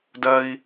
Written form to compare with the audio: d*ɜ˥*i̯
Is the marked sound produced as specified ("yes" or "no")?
yes